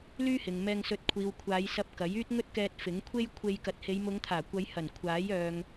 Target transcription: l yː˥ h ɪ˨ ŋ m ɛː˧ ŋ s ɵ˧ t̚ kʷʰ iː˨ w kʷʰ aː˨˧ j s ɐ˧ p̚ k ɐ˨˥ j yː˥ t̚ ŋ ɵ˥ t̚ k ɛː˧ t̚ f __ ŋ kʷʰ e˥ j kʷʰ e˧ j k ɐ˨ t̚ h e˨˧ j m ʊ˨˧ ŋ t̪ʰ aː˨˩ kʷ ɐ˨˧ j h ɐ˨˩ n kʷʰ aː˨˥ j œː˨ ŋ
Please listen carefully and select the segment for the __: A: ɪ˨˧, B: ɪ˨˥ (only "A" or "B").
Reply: B